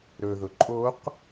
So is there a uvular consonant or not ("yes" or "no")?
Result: yes